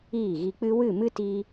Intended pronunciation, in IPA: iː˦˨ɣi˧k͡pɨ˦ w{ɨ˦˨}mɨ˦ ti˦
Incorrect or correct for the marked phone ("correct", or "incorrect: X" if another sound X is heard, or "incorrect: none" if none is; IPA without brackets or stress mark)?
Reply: correct